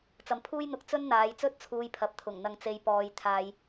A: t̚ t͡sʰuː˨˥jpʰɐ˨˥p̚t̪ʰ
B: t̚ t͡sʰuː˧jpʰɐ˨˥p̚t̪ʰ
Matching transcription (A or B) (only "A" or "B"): B